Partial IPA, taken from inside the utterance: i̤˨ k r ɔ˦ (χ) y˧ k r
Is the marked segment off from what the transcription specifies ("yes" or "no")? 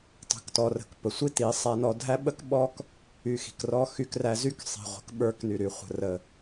yes